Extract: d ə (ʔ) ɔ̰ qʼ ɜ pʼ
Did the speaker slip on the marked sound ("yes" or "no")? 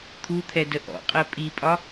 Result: no